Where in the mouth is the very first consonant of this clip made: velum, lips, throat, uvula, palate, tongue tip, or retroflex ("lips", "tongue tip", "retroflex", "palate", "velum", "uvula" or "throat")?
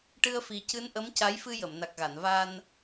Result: retroflex